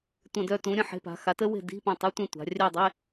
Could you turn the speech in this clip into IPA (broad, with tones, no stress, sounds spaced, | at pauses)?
tʷ ə̃˧˩ d œ˥˨ t ũ˩˥ ɾʲ ə̃˧˩ ħ e̤˧˥˧ p a̤˩˥ x a˩˥ t ə˥ w e̤˥˨ d i̤˧˥˧ p ĩ˧˩ tˤ e˧˥˧ tʷ ẽ˥˨ tʷ a̤˩˧ rʲ œ˥˨ dˤ e˧˥˧